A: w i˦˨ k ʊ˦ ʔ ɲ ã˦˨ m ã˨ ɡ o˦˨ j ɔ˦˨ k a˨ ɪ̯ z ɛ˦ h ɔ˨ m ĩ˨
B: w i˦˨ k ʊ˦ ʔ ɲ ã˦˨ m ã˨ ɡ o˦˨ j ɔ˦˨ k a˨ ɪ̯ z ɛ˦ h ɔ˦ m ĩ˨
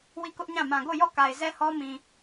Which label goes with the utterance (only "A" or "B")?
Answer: B